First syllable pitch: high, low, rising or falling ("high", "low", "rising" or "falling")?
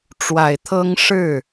low